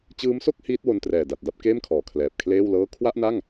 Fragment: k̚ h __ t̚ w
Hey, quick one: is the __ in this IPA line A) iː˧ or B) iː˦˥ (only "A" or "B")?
B